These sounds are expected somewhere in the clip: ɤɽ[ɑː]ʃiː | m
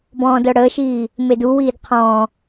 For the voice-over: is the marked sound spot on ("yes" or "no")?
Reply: no